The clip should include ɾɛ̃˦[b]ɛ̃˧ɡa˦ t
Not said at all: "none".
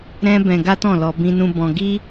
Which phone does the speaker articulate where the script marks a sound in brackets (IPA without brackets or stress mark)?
b